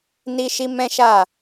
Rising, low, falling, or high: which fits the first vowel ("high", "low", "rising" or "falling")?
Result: high